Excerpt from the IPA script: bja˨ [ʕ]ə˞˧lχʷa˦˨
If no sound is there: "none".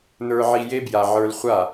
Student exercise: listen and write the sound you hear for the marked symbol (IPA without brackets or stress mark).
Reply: ʕ